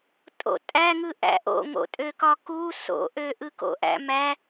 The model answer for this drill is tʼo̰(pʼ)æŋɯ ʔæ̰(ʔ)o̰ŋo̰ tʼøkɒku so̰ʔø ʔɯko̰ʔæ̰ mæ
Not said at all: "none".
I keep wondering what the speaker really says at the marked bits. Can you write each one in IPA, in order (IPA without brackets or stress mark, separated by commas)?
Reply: tʼ, ʔ